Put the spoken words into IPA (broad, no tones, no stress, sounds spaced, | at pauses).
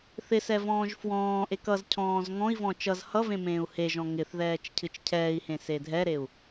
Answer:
θ ɪ s ɛ v ɔ̃ː ʒ f w ɔ̃ː ʔ e k ʌ z cʰ ɔ̃ː z ŋ ɔ̃ i̯ v ɔ̃ t͡ʃ ʌ z h ʌ v ẽ m ẽː u̯ h e ʒ ɔ̃ ŋ ɪ θ ð ɛː t͡ʃ cʰ ɨ t͡ʃ cʰ ɛː i̯ h ẽ s e dʱ ɛ ɾ e u̯